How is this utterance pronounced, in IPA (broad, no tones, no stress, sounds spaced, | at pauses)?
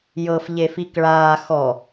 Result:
j ɤ f ʎ e f i k ɭ aː x ɔ